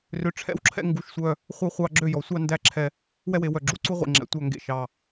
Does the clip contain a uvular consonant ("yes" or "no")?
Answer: yes